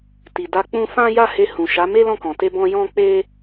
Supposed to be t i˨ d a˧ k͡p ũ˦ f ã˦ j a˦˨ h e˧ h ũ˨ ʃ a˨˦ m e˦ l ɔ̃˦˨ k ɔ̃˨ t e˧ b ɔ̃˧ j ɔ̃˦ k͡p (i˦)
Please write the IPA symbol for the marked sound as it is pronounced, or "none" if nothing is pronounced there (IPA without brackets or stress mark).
e˦